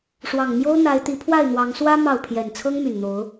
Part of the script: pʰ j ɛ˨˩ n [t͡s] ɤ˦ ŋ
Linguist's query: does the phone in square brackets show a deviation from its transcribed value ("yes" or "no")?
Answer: yes